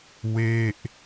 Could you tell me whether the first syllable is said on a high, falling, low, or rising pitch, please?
falling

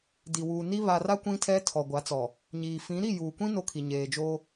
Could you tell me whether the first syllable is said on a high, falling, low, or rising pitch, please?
low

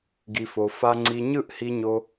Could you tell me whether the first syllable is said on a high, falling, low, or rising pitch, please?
low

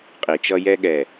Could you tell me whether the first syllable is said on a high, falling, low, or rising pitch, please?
low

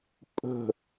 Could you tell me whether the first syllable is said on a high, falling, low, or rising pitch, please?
falling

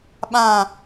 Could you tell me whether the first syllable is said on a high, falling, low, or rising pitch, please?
falling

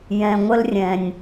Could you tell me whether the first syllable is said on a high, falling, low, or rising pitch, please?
low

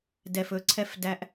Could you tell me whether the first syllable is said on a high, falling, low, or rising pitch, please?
low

